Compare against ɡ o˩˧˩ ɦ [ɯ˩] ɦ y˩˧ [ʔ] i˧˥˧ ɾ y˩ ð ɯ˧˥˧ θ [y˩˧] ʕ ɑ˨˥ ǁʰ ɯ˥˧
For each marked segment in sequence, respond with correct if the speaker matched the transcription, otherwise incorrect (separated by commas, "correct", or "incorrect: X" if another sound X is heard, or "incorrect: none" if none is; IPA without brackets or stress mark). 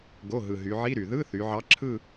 correct, incorrect: ʕ, correct